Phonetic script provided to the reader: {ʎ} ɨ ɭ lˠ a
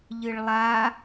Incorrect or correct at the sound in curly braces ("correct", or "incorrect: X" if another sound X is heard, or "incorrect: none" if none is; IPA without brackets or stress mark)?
correct